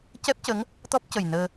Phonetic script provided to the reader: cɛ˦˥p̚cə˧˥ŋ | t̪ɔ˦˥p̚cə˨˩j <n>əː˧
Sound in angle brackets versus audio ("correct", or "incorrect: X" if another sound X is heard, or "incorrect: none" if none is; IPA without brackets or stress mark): correct